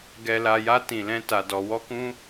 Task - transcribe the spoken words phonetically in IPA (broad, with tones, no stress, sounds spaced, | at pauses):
ɡ ɛ˧ l a˧ j a˦ t ĩ˧ l ɛ̃˦ t a˧ d ɔ˧ w ɔ˦ k ũ˦